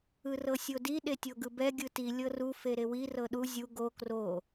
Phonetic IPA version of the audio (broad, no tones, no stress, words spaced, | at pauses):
ɯrɤsʲodi ɗetʲoɡɯbɛ ɡʲɯti lʲɤru feɾewi rɤɗu zʲu ɡo kro